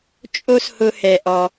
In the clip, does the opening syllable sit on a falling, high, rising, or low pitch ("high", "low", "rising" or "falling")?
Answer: high